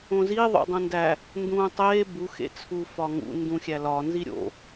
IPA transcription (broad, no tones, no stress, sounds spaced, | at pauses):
õ z i ðˤ o̰ dˤ ũ n d æ | n d ũː tˤ eː b u x ḛ t͡sʰ u f ɒ ŋ ṵ n d ũ xʲ æ l ɒ n z i ɾʲ o̰